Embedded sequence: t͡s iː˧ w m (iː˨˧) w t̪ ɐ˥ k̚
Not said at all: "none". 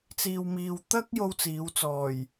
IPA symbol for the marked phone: iː˧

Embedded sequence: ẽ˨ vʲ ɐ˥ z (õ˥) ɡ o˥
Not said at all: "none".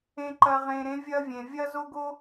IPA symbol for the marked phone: o˥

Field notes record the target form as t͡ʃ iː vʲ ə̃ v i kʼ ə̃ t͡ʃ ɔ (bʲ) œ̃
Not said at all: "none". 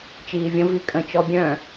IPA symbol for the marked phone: bʲ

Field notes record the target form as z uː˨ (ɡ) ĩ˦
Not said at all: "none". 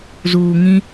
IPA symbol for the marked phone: ŋ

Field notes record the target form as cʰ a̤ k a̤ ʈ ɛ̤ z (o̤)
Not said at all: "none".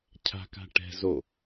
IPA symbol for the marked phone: o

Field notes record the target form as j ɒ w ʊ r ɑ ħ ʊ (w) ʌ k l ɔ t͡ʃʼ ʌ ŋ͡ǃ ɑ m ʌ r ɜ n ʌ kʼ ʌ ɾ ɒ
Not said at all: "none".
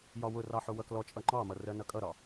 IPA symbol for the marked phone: w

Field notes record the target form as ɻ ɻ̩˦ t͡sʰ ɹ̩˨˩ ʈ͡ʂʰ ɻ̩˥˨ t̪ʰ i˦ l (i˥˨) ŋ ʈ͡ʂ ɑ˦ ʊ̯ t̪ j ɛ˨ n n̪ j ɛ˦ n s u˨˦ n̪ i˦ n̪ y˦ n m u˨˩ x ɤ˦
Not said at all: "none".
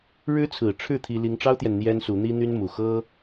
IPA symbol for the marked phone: i˦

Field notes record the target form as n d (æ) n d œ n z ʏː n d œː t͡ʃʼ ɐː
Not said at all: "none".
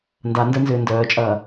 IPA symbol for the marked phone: a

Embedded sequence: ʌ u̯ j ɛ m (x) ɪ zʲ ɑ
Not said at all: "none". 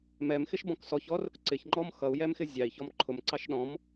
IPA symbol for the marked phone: x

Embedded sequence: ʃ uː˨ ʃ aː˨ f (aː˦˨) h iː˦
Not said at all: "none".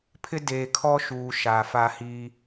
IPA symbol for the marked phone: aː˦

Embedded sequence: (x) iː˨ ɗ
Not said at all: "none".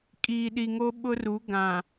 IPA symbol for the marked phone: kʼ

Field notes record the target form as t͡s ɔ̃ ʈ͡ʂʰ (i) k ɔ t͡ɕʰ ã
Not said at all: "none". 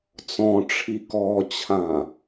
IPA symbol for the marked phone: i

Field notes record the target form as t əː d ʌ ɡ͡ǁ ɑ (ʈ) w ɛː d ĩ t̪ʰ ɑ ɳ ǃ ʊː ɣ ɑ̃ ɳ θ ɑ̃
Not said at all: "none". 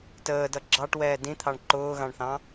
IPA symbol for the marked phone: ʈ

